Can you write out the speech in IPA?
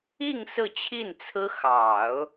i˥˧ŋ sɹ̩˥˧t͡ɕʰi˥˩nt͡sʰɹ̩˥ xɑ˨˩˦ʊ̯

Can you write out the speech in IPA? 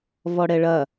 vɔɽɛɭɐ

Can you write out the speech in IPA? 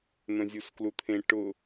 n̪œ̃zʲusklut̪ʰẽ ʈʊ

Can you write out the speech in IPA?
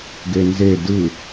ɡenze dɯ

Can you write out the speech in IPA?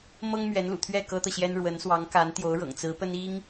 mɤ˥ŋmɥɛ˧˥nlṵ˨˩t̪ʰɥɛ˥˩ kɤ˥t̪ɤ˨ɕjɛ˥n ɻwə˧˥nswɑ˧˥ŋka˧˥n t̪jo˧˥ʊ̯ɻɤ̰˨˩ŋt͡sɹ̩˧˥pə˥n i˥ŋ

